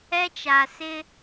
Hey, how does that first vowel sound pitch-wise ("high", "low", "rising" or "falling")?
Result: high